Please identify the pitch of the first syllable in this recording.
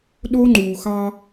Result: high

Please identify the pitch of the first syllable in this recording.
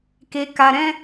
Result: low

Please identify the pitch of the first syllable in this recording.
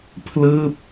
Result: falling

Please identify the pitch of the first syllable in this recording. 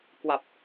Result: low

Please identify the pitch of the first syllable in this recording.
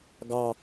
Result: low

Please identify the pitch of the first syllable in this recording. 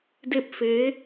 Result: falling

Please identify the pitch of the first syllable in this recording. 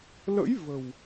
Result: rising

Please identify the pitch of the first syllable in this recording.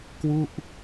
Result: falling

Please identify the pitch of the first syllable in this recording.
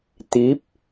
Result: rising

